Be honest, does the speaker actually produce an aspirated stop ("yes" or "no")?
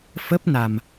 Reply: no